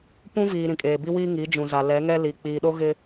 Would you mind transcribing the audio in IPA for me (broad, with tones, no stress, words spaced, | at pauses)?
pũ˦viː˨ ɾĩ˨kʼeː˨bi˦ wiː˦ŋi˨˦d͡ʒũ˨za˨ lɛ˨˦ŋɛ˦ li˨ k͡piː˨ɗo˦ ɣɪ˦